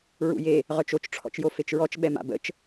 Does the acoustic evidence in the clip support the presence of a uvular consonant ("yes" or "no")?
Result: yes